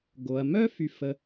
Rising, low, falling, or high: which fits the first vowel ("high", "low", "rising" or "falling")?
low